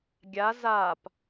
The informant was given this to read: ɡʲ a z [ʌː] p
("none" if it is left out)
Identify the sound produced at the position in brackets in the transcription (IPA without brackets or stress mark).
aː